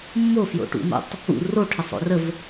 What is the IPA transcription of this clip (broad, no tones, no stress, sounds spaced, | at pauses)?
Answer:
mː o f j o̰ ʈ ṵ m ə̰ tˤ | ṵ r o ʈʰ ə sˤ o̰ r ə v